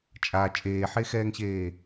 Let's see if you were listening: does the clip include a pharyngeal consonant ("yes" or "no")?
yes